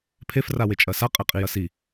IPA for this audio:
pʰ e f r a w e t͡ʃʼ ɐ s a qʼ e qʼ i j ɐ s i

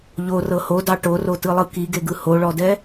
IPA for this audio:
ʎ o r ɤ h o d ɑ ʈ o r o t ɯ lˠ ɯ k i ɡ e ɡ ɯ h o ɭ ɔ d ɛ

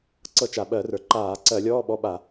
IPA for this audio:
ǀ ɤ˧˩˧ t͡ʃ a˩ ɓ ɜ˧˩˧ r ə˞˩ ǃ aː˧˩˧ ǀ ɜ˧˩˧ lʲ ɔː˧˥˧ ɓ ɔ˧˥˧ ɓ a˧˩˧

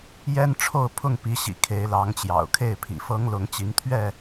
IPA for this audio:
j ɛ˦ n ʈ͡ʂʰ o˥˨ ʊ̯ pʰ ʊ˥˨ ŋ p i˨˦ ɕ ḭ˨˩ kʰ e˨˦ ɪ̯ l ɑ˨˦ ŋ t͡ɕ j ɑ̰˨˩ ʊ̯ kʰ e˥˨ ɪ̯ pʰ ḭ˨˩ f ɤ˦ ŋ l ʊ˨˦ ŋ t͡ɕ i˨˦ ŋ t̪ʰ ɥ ɛ˥˨

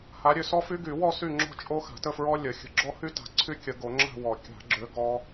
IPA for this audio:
h a˨˦ ɾʲ ø˨˦ s ɔ˦˥ f y˦˥ ɡ y˨˩˦ w ɔ˥˨ s y˥˨ ŋ͡ǁ ɔ̤˥˨ t͡ʃʼ o˦˥ x a̤˨˩˦ t ə˥˨ f ɹ ɔ˦˥ lʲ ə˨˩˦ xʲ ə̤˨˦ ɡ͡ǁ ɔ˦˥ h y˦˥ t a̤˨˩˦ ǀʰ y˦˥ kʲ ə˨˩˦ ɡ o˨˩˦ ŋ͡ǁ a̤˥˨ w ɔ˨˩˦ kʲ a̤˨˩˦ ɡ͡ǁ ø˨˦ ɡ ɔ˦˥

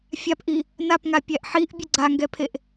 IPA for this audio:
fʲ a p ʔ i | n a p ŋ a pʲ æ ʔ ħ i ʔ bʲ ə ɡ͡ǀ a ŋ ɡ ɛ pʰ e ʔ

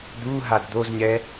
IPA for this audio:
d̪ u ɦ a d d̪ o z ɲ ɛ

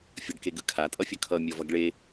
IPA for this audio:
fʲ ʌ ɖ k e ɡ ɯ kʰ a tʼ ʌ fʲ ʌ kʰ ʌ mʲ ʌ v ʌ ɡ ɭ e

